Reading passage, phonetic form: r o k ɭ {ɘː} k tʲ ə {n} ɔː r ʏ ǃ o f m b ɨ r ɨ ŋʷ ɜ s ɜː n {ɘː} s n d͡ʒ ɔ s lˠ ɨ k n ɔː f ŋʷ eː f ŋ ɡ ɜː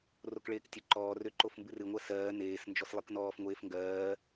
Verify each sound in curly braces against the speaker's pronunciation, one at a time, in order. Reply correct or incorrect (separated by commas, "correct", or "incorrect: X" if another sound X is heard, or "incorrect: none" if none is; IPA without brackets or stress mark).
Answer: incorrect: eː, incorrect: ǃ, incorrect: eː